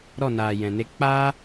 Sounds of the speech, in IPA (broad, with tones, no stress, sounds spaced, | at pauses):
ɾ ɔ˦˨ n aː˨ j ɛ̃˨ n e˧ k͡p aː˦